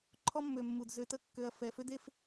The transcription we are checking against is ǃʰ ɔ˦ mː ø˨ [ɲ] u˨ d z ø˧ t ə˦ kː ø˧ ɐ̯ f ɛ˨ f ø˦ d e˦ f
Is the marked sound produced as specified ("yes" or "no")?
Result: no